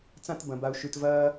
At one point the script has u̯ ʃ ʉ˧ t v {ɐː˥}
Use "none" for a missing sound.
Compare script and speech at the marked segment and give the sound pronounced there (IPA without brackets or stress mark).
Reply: ɐː˥